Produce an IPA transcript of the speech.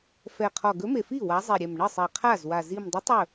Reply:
f ɛ˨˩ qʰ ɔ˨˩ ɡ ɵ˨˥ m e˨˩ f i˥˩ w a˨˥ zˤ i˨˩ ɾʲ ɛ˨˩ m ɳ ə˥˩ sˤ ɛ˨˩ qʰ a˥˩ z w a˨˩ z i˨˩ m dˤ ə˨˥ tˤ ɵ˥˩

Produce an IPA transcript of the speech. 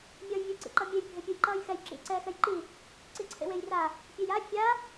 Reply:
mʲ ʌː j vʲ ɯ ǀ ḭ ǃ ʌ mʲ e j bʱ e pʲ u j ǃ ʌː j x ɛ j ǁ ḭ ǀ ɛː x ɛ j ǃ i | ǀ i ǀʰ ḛ w e j r a | pʲ e j a fʲ a

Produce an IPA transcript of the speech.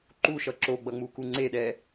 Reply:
ǃ u ʃ ʌ ǁ o ɡ͡b ʌ ŋ͡m u k u ŋ͡ǀ e ɗ ɛ

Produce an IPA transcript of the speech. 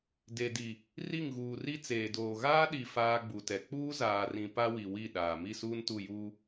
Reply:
d e˨ d i˨ | r i˦˨ ŋ ɣ uː˨ r i˦ t͡s eː˨ d oː˨ ɣ aː˦ ɗ i˨ f aː˦ ɡ͡b u˨ t ɛ˨ k͡p uː˦ z aː˨ r ĩ˨ p a˦ w i˨ w i˦˨ ɗ aː˨ m i˦˨ s uː˦ n t u˦˨ j uː˦

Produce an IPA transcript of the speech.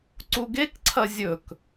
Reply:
ǀ u ɡ e k ǀʰ ɐ zʲ ɵ k

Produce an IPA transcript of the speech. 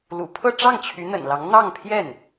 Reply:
l ṵ˨˩ pʰ ɤ˥˧ ʈ͡ʂ ɑ˥˩ ŋ t͡ɕʰ y˧˥ n̪ ə̰˨˩ n l ɑ˧˥ ŋ n̪ ɑ˥˧ ŋ pʰ j ɛ˥˩ n

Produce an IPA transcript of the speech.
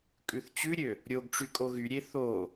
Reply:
kʼ ʉ θ t͡ɕ ʉ ɾʲ ø | ɾʲ o ɡ ʈ͡ʂ y kʼ o ɣ y ɾʲ e θ o

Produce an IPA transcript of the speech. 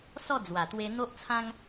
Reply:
s ɔ˥˧ d͡z w a˨˩ t̪ w e˧ n̪ o˦ ʔ t͡sʰ ã˦ ŋ

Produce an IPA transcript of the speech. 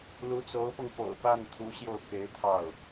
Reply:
l u˧˥ t͡s o˧˥ ʊ̯ p ɤ˧ ŋ p o̰˨˩ ʊ̯ p a˥˩ n t̪ʰ u˧˥ ɕ j o˥˩ ʊ̯ k e˧˥ ɪ̯ t̪ʰ ɑ˥˩ ʊ̯

